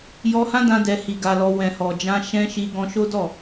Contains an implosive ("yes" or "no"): no